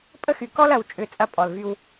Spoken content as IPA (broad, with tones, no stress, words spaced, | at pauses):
pʼə˦xy˨ kɔ˦l ɐ˨wt͡ʃʼʏ˨ t͡sʼɐ˦pʼɔ˨lvy˦w